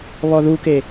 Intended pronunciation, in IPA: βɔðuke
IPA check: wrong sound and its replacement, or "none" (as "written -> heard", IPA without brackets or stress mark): none